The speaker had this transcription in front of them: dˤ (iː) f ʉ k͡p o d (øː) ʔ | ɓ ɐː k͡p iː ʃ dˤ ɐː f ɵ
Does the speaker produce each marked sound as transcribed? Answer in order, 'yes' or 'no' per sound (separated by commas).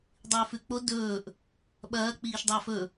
no, no